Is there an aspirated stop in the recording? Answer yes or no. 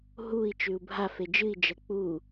no